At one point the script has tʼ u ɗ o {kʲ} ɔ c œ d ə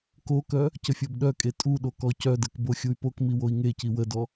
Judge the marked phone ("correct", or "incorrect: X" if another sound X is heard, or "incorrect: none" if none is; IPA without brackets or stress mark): incorrect: k